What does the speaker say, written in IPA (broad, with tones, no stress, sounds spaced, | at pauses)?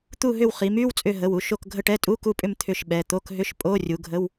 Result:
t̪ u˦˨ ɦ ʏ˦˨ w χ i˩˧ m y˧˥˧ w t͡sʼ ʏ˦˨ ɦ ə˩˧˩ w u˩˧˩ ʃ o˦˨ k ɡʱ ə˦˨ ʈ ɛ˧˥˧ tʼ u˧˥˧ k u˦˨ pʼ ʏ˦˨ m t̪ʰ ʏ˦˨ ʃ ɓ ɛ˩˧˩ t̪ o˧˥˧ k ɦ ʏ˧˥˧ ʃ pʼ o˧˥˧ rʲ u˩˧ ɡʱ ə˧˥˧ w